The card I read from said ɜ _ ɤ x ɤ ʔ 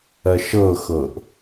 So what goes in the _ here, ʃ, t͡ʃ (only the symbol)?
ʃ